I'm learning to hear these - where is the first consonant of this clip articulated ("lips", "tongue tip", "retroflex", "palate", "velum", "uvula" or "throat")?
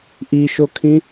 throat